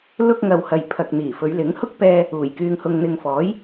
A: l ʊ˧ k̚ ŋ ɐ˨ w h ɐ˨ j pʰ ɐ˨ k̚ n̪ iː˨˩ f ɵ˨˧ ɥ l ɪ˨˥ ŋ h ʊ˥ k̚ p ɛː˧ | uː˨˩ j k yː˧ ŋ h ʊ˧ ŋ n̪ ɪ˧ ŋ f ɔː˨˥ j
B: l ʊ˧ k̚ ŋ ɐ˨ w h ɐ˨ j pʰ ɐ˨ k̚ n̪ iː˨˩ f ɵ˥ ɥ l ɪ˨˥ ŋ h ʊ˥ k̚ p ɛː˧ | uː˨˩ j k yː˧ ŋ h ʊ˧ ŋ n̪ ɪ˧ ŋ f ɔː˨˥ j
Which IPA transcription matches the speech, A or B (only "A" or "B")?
A